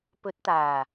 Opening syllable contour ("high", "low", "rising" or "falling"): rising